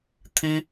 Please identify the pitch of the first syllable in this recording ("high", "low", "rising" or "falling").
high